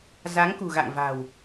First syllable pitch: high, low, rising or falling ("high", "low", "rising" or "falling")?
rising